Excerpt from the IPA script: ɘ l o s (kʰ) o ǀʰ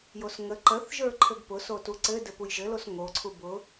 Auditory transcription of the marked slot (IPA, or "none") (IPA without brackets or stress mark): ŋ